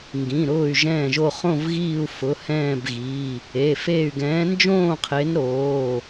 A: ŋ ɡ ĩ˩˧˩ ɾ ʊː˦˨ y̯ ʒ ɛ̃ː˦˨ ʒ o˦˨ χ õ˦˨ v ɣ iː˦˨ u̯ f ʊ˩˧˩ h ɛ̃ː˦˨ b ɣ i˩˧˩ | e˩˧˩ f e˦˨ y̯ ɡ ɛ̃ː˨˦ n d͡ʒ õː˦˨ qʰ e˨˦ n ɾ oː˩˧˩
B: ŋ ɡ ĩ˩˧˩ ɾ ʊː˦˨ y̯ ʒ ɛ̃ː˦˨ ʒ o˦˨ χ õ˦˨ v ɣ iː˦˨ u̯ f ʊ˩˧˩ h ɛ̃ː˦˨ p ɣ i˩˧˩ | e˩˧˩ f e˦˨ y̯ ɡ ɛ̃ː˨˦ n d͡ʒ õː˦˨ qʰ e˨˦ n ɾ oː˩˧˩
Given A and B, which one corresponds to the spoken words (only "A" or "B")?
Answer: A